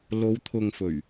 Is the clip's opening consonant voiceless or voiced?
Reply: voiced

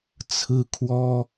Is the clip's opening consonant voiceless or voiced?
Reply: voiceless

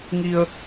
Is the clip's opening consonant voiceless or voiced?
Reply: voiced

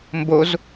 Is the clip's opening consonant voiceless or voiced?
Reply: voiced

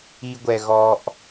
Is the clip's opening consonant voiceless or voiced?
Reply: voiced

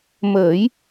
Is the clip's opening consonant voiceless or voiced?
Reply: voiced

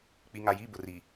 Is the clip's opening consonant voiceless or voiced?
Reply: voiceless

